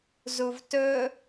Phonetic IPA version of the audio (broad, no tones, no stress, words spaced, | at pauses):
zuvtɵ